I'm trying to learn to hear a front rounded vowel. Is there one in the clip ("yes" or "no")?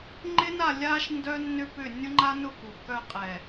yes